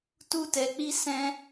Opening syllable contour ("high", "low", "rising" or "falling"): high